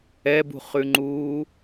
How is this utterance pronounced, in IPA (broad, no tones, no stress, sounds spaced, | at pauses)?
ɛ b ṳ χ ʉ ŋ͡ǃ uː